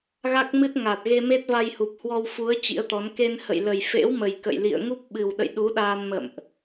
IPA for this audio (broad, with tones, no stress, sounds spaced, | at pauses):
ɣ a˦˥ k̚ m ɨ˦˥ t̚ ŋ a˨˩ t̚ ɣ e˧ m e˦˥ t̚ v a˧ j h u˨˩ p̚ h w ɔ˧ w f u˨˦ ə̯ t͡ɕ ḭ˧˥ ə̯ t̪ ɔ˨˦ n k e˧ n h ə̰˧˨ j l ə˨˩ j f ḛ˧˥ w m ə˨˩ j k ə̰˧˨ j l ḭ˧˨ ə̯ ŋ u˦˥ p̚ ɓ ɨ˨˩ w ɗ ə̰˧˨ j ɗ u˨˦ ɗ aː˧ n m ə̰˧˨ m ʔ